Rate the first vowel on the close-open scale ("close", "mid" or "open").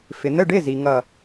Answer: close